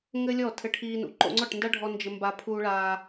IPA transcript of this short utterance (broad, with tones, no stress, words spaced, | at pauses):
ŋɘ˦lʲɔ˦˨ tʰɘ˧ʈʰiː˧nṵ˨ ǃo̰˧ŋ͡ǀɔ˦˨ʈnda˦ɖʱɔ˧ nd͡ʒɘ˧ mba˧ pʰuː˧ɭaː˧